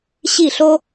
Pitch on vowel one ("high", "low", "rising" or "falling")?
falling